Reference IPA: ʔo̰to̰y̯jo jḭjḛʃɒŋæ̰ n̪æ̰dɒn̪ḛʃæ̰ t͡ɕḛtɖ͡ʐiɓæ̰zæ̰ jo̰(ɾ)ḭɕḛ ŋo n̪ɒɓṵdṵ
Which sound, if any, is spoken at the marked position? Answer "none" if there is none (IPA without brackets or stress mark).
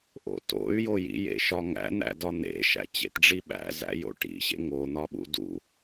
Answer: ʈ